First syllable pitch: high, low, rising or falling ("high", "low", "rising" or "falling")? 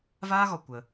high